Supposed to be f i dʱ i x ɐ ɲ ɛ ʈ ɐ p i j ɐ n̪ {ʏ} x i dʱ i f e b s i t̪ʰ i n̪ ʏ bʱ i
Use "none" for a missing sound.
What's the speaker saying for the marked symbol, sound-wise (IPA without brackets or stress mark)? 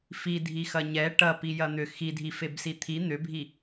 ʏ